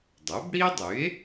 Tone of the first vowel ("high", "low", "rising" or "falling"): rising